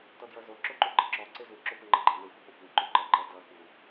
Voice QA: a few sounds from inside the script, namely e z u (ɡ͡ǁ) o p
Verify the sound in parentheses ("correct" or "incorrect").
incorrect